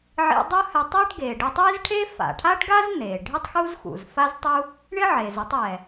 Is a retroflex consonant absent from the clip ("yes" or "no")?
no